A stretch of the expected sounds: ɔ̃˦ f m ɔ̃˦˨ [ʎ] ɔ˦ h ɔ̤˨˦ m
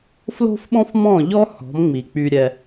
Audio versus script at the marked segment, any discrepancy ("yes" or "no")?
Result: no